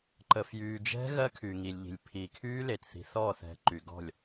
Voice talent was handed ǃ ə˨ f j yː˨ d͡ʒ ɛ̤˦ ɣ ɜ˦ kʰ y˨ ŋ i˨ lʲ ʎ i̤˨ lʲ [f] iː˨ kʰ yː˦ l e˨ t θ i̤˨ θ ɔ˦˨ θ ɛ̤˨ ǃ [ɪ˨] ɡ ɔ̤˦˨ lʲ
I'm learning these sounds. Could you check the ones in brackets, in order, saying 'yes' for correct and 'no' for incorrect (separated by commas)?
no, no